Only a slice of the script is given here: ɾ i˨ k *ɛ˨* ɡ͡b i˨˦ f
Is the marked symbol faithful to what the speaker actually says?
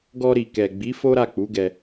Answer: yes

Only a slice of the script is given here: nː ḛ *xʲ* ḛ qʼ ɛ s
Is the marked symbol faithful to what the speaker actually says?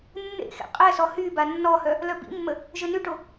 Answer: no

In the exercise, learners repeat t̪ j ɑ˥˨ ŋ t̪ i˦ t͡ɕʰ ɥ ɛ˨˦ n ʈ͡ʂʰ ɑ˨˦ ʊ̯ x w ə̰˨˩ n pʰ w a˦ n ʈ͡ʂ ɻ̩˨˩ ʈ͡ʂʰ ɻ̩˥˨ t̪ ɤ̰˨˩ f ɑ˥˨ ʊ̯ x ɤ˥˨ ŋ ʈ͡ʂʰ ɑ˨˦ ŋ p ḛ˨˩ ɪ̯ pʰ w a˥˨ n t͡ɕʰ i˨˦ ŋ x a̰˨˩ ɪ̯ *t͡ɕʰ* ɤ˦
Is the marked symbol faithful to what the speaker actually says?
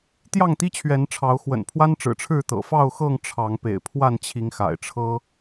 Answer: no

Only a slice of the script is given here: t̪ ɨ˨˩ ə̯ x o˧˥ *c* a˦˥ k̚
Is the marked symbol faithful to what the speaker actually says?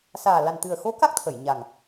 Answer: no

